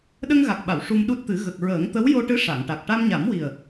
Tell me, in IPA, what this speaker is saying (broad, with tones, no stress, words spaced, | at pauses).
ɗə˧ŋɣa˨˩k̚ɓa˨˩˨w ʂu˧mɗu˦˥t̚t̪ɨ˨˩˦ ɣə˨˩k̚ɹəː˨˩˦ŋt̪ə˧˥w jo˧ʈɨ˧˥ ʂa˨˩˨ŋʈa˨˩k̚ ʈa˧mɲa˨˩˦mwi˨˩ə̯